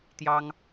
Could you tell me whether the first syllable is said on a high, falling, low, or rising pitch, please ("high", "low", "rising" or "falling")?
high